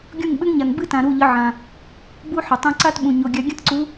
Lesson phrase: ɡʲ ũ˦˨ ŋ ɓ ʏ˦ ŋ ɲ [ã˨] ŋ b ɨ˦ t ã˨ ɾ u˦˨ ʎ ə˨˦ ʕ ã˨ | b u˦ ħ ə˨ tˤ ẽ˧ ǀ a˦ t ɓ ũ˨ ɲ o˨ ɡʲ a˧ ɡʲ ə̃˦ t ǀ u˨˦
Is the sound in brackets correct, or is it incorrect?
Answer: incorrect